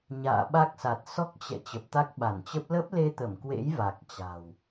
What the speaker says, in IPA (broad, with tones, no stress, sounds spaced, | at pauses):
ɲ a̰ː˧˨ ɓ a˦˥ k̚ s a˨˩ t̚ s ɔ˦˥ k̚ t͡ɕ ɛ̰˧˨ t͡ɕ ə˨˩ p̚ t̪ a˦˥ k̚ ɓ a˧˩ n t͡ɕ ə˦˥ p̚ l ə˦˥ p̚ l e˧ t̪ ə˧˩ m k w ḛ˧˥ j v a˨˩ k̚ t͡ɕ a̤˨˩ w